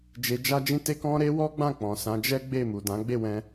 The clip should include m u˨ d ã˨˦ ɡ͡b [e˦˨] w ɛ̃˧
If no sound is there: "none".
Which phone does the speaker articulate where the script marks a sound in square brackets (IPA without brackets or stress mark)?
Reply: e˦˨